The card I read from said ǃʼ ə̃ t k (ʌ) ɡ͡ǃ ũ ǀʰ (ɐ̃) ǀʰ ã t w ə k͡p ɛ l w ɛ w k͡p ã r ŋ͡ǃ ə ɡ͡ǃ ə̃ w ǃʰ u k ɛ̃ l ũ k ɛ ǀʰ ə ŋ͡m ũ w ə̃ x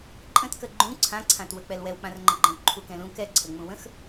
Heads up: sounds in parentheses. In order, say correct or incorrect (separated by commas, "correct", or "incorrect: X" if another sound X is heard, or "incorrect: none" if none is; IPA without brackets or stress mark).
incorrect: ə, incorrect: ã